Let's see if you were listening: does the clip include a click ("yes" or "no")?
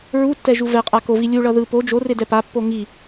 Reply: no